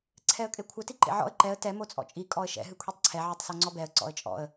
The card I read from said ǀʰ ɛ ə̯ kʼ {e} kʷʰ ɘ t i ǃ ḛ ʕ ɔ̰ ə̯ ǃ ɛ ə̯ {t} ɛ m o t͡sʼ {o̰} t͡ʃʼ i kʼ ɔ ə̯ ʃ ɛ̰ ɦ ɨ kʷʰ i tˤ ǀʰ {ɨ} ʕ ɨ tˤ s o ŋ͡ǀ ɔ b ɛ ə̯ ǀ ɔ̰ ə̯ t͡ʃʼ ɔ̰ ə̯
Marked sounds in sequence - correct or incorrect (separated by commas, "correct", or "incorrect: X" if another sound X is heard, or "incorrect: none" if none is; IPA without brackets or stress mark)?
correct, correct, incorrect: ɔ̰, incorrect: ɛ